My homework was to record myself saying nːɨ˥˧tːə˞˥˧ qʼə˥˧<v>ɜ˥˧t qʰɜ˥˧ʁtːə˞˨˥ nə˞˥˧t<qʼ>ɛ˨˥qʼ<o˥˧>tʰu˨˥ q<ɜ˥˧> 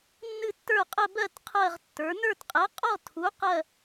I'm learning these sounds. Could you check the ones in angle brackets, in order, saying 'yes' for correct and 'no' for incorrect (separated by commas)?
no, yes, no, yes